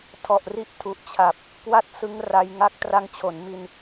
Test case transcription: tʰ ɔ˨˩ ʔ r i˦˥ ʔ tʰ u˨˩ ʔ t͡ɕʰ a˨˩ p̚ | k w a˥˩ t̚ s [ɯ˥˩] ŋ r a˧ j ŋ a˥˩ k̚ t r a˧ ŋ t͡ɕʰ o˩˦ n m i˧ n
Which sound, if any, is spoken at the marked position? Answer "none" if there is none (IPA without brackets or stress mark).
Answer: ɯ˦˥